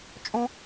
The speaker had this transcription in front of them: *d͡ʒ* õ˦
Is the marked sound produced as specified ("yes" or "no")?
no